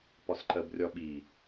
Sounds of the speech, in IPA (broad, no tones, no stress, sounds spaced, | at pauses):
p ɒ s ǃ ɜ b rʲ ɒ ɓ i